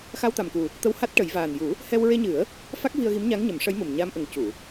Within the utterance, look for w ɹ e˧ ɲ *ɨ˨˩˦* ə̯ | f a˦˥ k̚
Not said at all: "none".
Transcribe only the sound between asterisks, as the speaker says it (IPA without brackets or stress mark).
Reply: ɨ˨˩˦